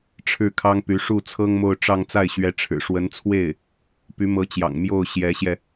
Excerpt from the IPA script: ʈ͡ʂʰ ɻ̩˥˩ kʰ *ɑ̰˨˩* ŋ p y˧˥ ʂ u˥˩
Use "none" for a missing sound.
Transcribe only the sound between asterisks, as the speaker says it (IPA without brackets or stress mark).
ɑ˥